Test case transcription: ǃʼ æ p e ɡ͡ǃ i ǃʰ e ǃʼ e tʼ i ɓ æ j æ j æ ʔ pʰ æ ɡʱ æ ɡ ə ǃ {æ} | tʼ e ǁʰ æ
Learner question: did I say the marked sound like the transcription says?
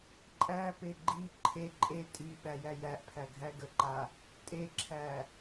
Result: no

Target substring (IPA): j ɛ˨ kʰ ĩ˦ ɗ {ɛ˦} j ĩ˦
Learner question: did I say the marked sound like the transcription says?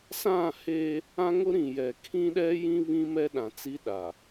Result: yes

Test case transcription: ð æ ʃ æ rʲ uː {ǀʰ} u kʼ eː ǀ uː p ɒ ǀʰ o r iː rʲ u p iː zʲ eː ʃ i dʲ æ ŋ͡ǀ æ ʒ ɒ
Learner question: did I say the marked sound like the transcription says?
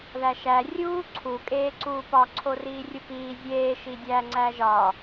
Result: yes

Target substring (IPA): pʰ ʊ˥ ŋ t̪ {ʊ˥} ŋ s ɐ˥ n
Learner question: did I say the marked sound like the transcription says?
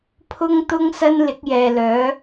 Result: yes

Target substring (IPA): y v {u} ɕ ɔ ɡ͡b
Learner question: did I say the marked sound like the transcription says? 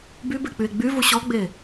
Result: yes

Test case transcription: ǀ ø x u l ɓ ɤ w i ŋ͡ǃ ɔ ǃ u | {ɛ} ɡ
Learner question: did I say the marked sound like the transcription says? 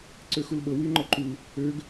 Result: no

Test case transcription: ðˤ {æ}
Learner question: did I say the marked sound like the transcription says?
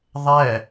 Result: yes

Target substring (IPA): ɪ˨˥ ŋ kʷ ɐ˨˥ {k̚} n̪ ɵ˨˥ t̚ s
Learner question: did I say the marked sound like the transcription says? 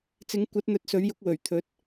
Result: no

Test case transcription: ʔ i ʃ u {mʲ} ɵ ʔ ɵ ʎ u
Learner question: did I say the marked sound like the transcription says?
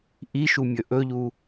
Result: yes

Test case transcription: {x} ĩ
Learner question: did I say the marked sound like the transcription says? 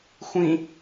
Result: no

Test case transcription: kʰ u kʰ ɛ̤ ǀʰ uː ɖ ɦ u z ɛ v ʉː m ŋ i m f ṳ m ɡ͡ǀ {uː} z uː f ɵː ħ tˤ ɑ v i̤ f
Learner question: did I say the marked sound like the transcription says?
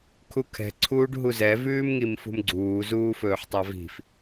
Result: yes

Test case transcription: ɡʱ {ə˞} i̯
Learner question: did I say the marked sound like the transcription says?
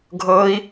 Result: no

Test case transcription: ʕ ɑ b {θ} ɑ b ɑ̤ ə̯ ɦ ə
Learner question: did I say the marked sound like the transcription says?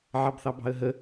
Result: yes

